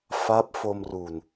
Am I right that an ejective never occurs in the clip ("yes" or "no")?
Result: yes